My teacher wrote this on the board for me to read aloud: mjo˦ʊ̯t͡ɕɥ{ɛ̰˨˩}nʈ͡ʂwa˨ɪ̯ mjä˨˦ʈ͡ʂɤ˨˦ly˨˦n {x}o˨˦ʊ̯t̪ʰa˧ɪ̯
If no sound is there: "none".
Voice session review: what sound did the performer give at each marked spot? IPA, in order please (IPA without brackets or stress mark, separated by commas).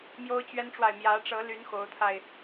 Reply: ɛ˦, x